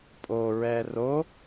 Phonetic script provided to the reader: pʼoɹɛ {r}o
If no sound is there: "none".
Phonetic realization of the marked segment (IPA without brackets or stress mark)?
r